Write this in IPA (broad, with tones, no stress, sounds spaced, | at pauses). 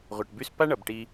ʁʷ ɛ˩ ʈ b y˧ s p a˥ ɳ ʌ˩ b ʈ i˧